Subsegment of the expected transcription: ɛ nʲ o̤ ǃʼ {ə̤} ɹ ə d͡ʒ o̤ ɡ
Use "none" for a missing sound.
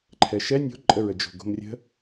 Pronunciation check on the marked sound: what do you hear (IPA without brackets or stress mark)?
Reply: ə